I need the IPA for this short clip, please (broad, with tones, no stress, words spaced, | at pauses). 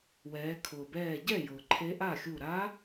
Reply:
wɛː˩˧kʰʊː˩bɛː˧˩ɟɛ˥˩ jʊː˩ǃʰe˧˥ ʔa˥˩xʲu˧˩ ɾa˧˥